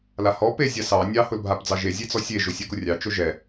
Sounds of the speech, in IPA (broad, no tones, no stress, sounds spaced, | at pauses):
l a h ɔ p e zʲ a s ɑ nʲ ɑ h ʊ l bʱ a p d͡z ɑ ʒ e zʲ e t͡s ɔ sʲ e ʒ ʊ sʲ ɛ k ʊ rʲ ɑ t͡ʃ ʊ ʒ ɛ